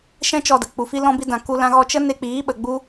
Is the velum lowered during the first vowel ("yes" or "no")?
yes